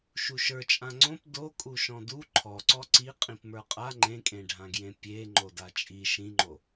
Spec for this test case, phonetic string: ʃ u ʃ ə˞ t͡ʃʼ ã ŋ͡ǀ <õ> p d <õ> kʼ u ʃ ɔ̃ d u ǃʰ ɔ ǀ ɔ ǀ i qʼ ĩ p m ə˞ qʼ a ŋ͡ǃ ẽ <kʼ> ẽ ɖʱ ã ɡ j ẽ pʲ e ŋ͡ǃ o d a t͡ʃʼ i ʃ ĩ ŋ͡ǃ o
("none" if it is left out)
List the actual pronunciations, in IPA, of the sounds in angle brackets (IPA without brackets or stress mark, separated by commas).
õ, o, kʼ